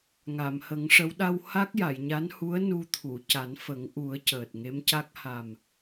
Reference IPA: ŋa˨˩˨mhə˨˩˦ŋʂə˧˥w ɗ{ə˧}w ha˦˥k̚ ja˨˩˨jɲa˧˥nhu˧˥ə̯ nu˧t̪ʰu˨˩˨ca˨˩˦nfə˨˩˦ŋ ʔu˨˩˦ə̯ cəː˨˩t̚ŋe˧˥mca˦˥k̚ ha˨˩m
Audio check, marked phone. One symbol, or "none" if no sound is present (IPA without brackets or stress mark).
a˧